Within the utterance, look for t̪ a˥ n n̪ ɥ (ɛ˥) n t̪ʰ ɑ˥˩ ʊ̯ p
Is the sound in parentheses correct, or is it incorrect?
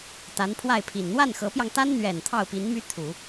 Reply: incorrect